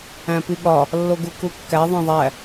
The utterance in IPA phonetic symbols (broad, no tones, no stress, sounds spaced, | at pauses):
æ̃ p i ɠ ɒ | lː o ɡ u k u kː æ ðˤ ẽ ðˤ æ